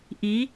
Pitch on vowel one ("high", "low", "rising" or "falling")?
rising